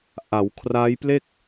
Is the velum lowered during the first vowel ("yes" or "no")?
no